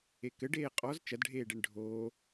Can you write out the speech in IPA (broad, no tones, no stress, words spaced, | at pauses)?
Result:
ekɘ ɖeːqʼɔz t͡ʃɐdɖʱeːɖeɳ ɖʱoː